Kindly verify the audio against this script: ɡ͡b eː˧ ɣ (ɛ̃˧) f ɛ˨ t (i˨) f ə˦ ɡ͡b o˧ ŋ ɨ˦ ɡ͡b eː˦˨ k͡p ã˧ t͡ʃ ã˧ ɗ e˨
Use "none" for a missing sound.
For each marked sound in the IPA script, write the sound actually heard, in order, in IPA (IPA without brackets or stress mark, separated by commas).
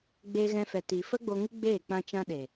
ɛ̃˧, i˨